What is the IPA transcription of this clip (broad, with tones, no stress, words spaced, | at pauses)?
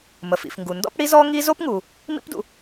mə˩fḭ˩fŋɡu˩ ndɔ̰˥pɽi˥zɔ˥ ŋi˥ zo˥pŋu˩ | mḭ˥pdṵ˩